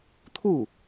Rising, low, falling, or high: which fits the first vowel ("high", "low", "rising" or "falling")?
falling